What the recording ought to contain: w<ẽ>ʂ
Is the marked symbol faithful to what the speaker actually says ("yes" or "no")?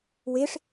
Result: no